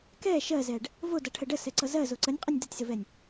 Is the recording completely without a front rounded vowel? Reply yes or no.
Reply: yes